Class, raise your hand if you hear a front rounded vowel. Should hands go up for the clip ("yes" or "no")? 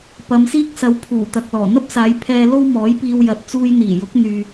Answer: yes